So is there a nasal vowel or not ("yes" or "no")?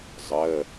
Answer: no